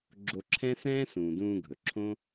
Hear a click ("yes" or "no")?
yes